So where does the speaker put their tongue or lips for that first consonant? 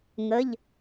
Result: velum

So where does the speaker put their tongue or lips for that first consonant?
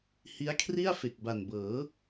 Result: throat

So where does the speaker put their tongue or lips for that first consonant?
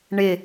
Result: retroflex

